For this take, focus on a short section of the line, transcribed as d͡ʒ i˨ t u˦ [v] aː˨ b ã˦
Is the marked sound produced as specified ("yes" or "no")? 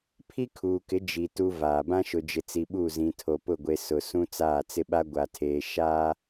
yes